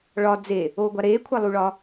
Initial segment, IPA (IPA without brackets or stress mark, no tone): ɭ